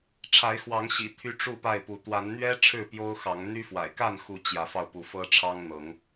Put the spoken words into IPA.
ʈ͡ʂʰ a˨˦ ɪ̯ x w ɑ˨˦ ŋ ɕ ḭ˨˩ t̪ʰ y˦ ʈ͡ʂ u˥˨ p a˥˨ ɪ̯ p u˨˦ t̪ w a˨˦ n n̪ ɥ ɛ˦ ʈ͡ʂʰ ɻ̩˥˨ p j o˦ ʊ̯ x ɑ˨˦ ŋ n̪ y˦ f w a̰˨˩ ɪ̯ k a˥˨ n x u˨˦ t͡ɕ j ä˨˦ f ɑ˧ ʊ̯ p u˨˦ f ɤ˦ ʈ͡ʂʰ ɑ˦ ŋ n̪ ɤ˨˦ ŋ

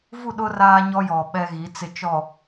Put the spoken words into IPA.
v u˦˨ ɗ ʊ˦ r aː˦ ɲ ɔ˦ j ɔ˨ ɓ ɛ˦ ɣ i˨˦ t͡s ɪ˨ t͡ʃ ɔ˨

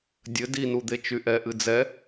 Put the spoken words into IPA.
dʲ ɘ d i n u d̪ e t͡ʃ y ʔ ɛ ʔ ɨ d͡z ɛ

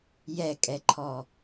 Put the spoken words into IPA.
j ɛ kʼ ɛ ǃʰ ɔ

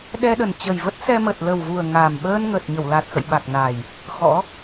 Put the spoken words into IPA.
ɗ ɛ˧ ɗ ə˨˩ n t͡ɕ ə˨˩ j v ə˦˥ t̚ s ɛ˧ m ə˨˩ t̚ l ə˨˩ w v u˨˩ ə̯ ŋ a˨˩ m ɓ əː˧ n ŋ ə˨˩ t̚ ɲ ə˧˩ w l a˨˩ t̚ x ə̰˧˨ j ɓ a˨˩ k̚ n a˨˩ j | x ɔ̰˧˥

